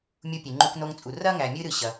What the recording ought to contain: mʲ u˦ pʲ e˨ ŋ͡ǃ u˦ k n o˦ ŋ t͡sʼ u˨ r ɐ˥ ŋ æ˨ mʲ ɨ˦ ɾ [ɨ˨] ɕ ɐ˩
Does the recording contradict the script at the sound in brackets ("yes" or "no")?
no